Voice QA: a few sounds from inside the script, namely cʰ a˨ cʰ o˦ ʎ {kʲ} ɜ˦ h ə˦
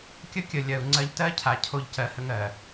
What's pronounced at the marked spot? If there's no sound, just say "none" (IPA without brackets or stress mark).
c